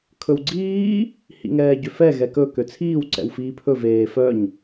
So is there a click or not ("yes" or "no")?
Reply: yes